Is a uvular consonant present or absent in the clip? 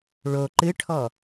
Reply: absent